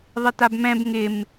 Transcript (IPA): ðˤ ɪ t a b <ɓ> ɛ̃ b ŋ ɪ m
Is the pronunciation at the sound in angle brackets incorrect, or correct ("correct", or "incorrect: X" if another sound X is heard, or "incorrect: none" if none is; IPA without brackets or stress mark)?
incorrect: m